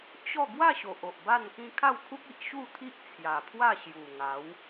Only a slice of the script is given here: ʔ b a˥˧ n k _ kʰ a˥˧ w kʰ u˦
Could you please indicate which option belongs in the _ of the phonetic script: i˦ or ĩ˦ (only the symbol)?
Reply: ĩ˦